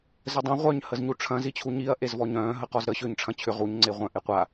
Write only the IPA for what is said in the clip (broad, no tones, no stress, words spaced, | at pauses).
zədˤẽ ʁʷœɲ həzɲuʈ͡ʂʰɐ̃ zit͡ɕʰuɲiɐ̯ ʔezvɔɲœ̃ː ɦəqɔzɾə ɕʏːɲʈ͡ʂʰɐ̃t͡ɕʰʏ ʁuɲ ŋ͡ǀeʁʷœ̃ ʔeqʷa